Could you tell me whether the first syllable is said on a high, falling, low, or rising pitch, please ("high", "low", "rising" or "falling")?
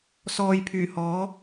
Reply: low